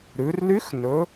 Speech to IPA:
ɾʉ˩˧r ly˧˥x nɵ˩˧

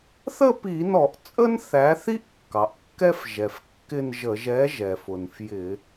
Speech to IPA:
θə˥˧pi˧˩˧nɔ˧˩˧ʔ t͡sʼə˥nθæ˨˥θi˥ʔ kːɑ˩ʔkːɛ˥f ʒɛ˩f kːɪ˥˧nʒə˧˩˧ʒ ɛ˨˥ ʒɛ˩fʊ˩n fjɪ˧˩˧

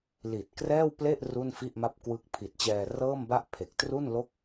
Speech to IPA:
li˨˩t̚ krɛː˥˩wple˥˩ʔ ru˥˩nfi˥˩ʔma˥˩p̚kwɯ˦˥k̚ pʰi˨˩t̚t͡ɕɛː˧rɤː˥˩mba˥˩ʔ pʰe˨˩k̚tru˥˩nlo˥˩k̚

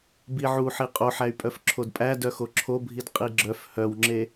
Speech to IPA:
biʕuħi qʼoħæy̯pʼœf ǁʰodpʼæ dœxoǁʰobʱid qʼiɡ͡ǁœf hœwŋ͡ǁe

